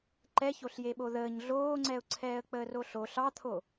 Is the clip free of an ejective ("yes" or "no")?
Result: yes